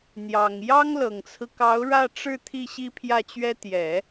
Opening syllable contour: low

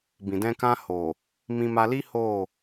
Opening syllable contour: low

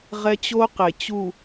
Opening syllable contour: high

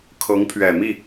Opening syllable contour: rising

